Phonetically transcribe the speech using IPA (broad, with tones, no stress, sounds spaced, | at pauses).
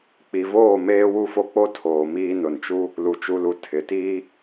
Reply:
k͡p i˨ v oː˦˨ m eː˦ w u˦ f o˦ k͡p o˦ tʰ oː˨ m iː˦ n ʊ˨ n t͡ʃ u˦ | l u˨ t͡ʃ u˨ l u˨ tʰ ɪ˨ t iː˦